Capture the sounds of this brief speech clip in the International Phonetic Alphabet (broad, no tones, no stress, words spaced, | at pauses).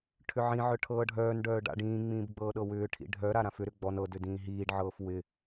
ʈʰʏʕĩʕœ ʈʰɤːɖʱœːnɖœː ɖa̰ɖĩːŋ͡mĩːb ɡ͡bɤːɗɤwʏːʈʰḭ ɖʱœɾa ɾãfʏɾʏ ɡ͡bɔn ɤ dʏdĩːɦiːɖʕɤːf wɪ